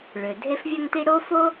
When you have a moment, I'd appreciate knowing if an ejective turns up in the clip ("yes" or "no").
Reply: no